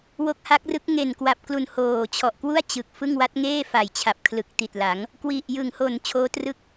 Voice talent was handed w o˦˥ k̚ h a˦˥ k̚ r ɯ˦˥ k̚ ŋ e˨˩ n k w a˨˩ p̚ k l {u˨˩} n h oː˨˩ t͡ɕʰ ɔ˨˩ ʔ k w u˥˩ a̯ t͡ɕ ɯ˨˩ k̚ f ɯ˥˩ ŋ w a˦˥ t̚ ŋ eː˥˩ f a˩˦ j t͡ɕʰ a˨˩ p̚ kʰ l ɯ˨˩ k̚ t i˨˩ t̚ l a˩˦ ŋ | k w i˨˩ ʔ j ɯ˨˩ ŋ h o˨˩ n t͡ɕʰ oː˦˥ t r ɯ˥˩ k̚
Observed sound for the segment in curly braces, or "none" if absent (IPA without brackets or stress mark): u˨˩